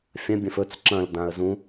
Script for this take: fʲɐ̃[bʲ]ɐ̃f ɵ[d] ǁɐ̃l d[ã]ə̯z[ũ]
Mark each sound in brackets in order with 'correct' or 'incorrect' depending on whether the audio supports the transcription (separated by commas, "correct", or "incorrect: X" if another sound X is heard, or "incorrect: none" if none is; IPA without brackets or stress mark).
correct, incorrect: t͡s, correct, correct